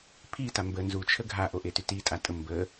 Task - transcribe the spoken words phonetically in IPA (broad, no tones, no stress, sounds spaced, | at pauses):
pʰ i t a m b ə n z u t͡ʃʰ ə ɡʱ a ʔ o ʔ e t y t i tʼ a tʼ ə m b ə